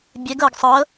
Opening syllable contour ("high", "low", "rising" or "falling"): rising